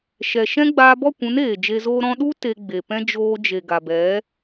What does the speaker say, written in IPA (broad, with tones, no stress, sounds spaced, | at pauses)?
ʃ ɛ˨ ʃ ɛ̃˦ ɡ͡b aː˧ b ɔ˦˨ kʷ ũ˨˦ n eː˨ d͡ʒ e˧ z oː˦ ɾ ɔ̃˧ ɗ u˦ t e˧ ɡ͡b e˨ p ɛ̃˦ d͡ʒ oː˧ d͡ʒ e˨ ɡ a˨ b ɛ˨˦